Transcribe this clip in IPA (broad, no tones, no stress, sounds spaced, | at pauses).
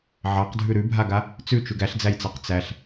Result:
ʕ ɑ q dʱ ʉ ɾ ʉ bʱ a ɡ a | t͡s ʉ t͡ʃ ʉ ɡ æ ɬ d͡z æ j t͡s ɑ q t͡s æ ɬ